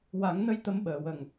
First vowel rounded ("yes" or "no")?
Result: no